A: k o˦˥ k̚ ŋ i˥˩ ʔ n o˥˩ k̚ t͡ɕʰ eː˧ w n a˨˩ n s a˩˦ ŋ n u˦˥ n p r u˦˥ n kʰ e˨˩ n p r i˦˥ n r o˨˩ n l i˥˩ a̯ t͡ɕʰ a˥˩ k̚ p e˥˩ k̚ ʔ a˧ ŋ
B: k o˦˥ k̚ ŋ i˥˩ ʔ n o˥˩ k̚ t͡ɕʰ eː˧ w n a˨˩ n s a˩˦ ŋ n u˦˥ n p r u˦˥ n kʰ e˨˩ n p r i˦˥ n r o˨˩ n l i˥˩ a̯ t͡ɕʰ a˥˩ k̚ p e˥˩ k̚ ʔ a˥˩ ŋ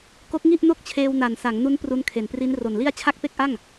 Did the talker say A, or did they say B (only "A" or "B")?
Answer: B